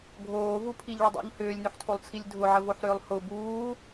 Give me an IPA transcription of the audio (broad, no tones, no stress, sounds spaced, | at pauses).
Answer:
ɡʱ oː v u pʰ i ʎ ɭ ə dˤ ṵ ʎ h ʏː lʲ n ʏ ħ tʰ o lˠ t͡sʰ i lʲ dʱ ʊ ʕ ə v o ħ ɾ ʏː lˠ h ʊ b uː